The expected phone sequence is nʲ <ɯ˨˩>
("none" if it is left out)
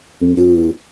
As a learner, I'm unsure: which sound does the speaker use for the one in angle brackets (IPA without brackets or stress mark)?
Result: ɯ˨˩